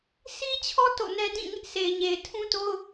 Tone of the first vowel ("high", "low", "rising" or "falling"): high